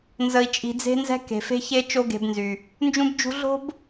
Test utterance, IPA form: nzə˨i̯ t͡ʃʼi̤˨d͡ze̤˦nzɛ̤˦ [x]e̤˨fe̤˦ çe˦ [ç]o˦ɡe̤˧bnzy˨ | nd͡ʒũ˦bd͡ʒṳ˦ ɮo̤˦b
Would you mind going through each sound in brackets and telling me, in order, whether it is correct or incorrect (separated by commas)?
incorrect, incorrect